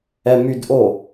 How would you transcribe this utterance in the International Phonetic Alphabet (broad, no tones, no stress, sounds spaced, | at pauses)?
ɛ m y d ʔ o